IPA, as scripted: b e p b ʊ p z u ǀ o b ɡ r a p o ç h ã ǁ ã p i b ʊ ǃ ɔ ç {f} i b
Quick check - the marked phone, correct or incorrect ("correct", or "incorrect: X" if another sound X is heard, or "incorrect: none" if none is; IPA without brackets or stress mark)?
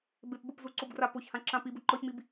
incorrect: m